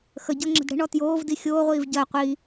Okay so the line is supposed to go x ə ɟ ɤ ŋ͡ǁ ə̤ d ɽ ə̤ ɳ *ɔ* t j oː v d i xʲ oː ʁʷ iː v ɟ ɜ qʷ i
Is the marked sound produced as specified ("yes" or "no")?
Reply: yes